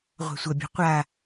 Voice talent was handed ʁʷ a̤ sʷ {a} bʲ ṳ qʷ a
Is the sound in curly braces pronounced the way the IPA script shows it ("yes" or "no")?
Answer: no